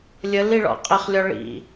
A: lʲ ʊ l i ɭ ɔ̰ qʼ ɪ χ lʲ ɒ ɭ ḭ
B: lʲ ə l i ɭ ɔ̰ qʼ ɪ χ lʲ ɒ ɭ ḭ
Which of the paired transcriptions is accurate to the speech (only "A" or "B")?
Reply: B